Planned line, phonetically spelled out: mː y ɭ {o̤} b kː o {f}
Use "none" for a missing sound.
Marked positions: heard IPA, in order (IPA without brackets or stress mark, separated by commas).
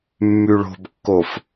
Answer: o̤, f